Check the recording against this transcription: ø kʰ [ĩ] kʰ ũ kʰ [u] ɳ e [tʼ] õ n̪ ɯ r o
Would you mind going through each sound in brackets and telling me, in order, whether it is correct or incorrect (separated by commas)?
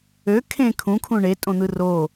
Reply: incorrect, incorrect, correct